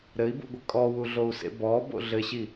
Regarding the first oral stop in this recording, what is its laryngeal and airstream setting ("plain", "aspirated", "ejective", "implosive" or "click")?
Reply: plain